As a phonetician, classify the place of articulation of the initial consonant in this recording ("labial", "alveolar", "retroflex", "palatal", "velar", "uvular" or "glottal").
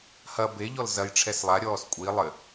glottal